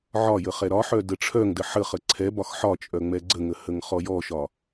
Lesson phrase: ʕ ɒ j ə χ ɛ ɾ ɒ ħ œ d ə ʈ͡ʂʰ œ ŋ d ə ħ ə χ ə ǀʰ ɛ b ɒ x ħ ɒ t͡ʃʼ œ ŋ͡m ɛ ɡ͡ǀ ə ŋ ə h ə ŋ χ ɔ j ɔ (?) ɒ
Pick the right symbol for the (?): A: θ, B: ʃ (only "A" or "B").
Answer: B